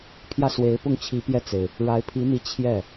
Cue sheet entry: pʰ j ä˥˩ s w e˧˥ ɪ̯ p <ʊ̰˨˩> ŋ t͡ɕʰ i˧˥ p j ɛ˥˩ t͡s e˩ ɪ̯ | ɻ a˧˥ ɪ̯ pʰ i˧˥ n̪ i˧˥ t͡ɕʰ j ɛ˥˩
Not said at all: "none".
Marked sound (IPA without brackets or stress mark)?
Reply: ʊ˥˩